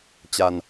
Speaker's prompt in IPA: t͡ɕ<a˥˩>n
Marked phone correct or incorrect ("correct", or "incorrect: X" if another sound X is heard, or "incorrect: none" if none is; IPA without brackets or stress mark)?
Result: incorrect: a˧